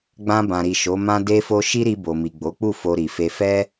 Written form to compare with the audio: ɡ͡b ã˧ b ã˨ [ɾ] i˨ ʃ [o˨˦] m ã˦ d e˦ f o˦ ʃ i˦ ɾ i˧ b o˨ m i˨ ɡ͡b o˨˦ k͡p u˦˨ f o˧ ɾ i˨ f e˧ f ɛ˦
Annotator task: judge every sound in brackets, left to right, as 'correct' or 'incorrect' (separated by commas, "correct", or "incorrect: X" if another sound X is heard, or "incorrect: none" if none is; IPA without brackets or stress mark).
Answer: correct, correct